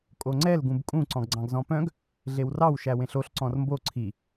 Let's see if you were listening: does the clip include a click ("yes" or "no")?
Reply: yes